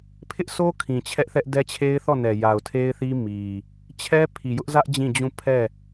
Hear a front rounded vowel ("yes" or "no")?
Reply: no